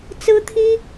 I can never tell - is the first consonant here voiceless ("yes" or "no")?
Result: yes